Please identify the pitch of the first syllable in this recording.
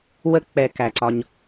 high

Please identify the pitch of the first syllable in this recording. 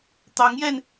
rising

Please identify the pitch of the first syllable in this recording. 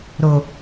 low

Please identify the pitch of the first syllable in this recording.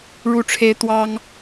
falling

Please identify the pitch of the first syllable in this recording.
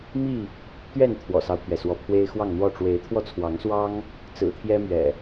falling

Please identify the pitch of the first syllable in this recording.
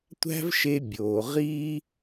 high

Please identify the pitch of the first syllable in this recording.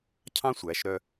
high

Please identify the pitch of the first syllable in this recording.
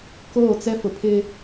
falling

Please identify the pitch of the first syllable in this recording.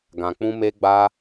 low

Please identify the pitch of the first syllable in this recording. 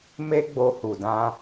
high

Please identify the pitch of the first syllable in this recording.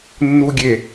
low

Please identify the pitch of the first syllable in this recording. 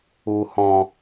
low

